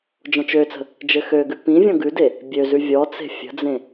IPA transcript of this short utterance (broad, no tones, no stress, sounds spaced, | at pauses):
d͡ʒ ɔ̃ t͡ʃ ø t͡s ə̤ | d͡ʒ ɘ x ø ɡ ʉ p ĩ vʲ ɔ̃ ɡ ʉ d e | bʲ ø z ʉ vʲ ɔ t͡s e̤ fʲ ə̤ d͡z ẽ